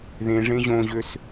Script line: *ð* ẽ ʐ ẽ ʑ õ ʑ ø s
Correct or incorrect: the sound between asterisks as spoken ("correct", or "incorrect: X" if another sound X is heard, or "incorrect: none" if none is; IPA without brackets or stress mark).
correct